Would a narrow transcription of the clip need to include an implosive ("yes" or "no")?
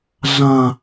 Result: no